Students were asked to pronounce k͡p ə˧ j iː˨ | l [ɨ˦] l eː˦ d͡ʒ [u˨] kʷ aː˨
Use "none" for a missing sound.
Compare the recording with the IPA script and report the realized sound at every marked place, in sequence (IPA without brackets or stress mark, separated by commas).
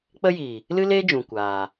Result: ɨ˦, ũ˨